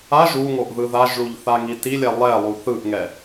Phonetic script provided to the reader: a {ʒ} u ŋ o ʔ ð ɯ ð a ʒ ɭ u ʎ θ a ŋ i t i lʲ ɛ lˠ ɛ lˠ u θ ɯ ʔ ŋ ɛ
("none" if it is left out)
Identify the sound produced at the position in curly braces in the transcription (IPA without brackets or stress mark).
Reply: ʒ